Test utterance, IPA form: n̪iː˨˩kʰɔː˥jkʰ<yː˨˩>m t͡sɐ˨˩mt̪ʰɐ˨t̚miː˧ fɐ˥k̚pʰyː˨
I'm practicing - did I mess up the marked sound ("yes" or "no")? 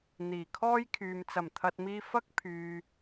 yes